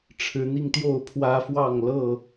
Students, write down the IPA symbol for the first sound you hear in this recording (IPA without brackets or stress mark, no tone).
ʈ͡ʂʰ